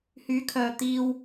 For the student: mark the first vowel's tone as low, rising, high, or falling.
rising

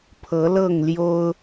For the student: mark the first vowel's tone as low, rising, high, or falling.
rising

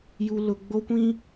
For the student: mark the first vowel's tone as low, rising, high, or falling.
high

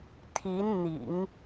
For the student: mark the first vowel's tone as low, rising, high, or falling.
rising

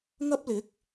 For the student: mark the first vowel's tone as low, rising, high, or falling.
high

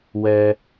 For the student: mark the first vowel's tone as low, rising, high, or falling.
low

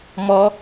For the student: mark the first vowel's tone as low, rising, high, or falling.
high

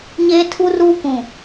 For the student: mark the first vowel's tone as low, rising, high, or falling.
high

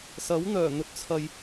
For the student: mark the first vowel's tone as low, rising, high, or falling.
rising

